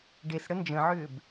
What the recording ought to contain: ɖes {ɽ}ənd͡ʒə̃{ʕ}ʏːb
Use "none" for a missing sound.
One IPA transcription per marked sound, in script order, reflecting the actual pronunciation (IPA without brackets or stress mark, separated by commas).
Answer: ɽ, ʕ